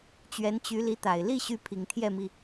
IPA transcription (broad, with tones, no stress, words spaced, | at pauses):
t͡ɕɥɛ˧˥nt͡ɕy˧˥li˧˥t̪a˨˩ɪ̯ li˥˩ ɕy˥pʰi˨˩ŋt̪ʰjɛ˥˩mi˩